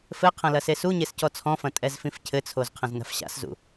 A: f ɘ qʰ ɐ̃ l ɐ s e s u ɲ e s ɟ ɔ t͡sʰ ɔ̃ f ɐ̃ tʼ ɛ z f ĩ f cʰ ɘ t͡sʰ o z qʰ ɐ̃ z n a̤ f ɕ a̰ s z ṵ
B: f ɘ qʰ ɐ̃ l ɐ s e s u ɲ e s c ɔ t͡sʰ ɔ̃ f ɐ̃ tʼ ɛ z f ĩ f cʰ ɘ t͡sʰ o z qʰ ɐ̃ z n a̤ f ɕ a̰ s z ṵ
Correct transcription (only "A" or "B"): B